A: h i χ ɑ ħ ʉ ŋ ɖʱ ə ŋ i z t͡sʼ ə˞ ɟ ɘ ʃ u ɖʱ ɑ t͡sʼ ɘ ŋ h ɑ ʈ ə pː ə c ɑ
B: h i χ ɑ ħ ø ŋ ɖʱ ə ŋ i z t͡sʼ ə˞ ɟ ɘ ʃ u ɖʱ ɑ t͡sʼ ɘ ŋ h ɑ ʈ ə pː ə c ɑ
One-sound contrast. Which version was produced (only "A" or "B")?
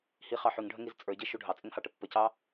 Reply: A